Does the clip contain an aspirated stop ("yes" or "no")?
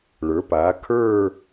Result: yes